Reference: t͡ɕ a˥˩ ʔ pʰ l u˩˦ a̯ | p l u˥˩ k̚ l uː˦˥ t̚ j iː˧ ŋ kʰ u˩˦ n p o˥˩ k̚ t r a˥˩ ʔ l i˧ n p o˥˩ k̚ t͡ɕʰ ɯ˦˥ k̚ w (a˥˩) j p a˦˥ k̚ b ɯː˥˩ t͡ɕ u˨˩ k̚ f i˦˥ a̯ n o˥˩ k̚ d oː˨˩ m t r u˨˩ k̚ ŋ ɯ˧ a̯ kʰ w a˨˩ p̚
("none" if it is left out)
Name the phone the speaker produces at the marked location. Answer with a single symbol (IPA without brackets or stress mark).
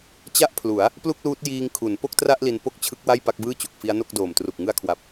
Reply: a˥˩